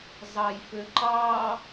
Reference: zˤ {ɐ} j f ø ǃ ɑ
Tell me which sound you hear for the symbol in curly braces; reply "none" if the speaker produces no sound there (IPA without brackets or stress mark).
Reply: ɑ